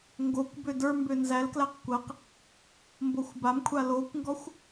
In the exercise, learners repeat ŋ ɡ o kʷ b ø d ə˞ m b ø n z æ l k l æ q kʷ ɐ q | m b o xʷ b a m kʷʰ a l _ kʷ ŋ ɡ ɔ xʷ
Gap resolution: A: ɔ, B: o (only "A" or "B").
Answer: B